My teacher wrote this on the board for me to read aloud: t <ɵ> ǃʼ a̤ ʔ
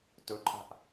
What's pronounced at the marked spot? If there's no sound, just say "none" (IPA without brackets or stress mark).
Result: ɵ